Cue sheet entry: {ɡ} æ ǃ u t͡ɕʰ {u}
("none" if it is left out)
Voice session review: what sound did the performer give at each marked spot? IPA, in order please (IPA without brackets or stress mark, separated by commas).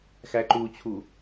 x, u